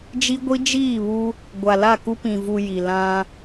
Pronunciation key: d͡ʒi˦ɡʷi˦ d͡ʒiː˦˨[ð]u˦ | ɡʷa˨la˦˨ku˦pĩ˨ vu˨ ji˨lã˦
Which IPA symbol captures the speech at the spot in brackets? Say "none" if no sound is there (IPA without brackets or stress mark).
β